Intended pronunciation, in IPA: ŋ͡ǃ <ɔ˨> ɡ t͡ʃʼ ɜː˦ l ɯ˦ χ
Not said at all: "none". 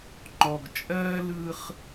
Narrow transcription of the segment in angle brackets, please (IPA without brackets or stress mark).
ɔ˨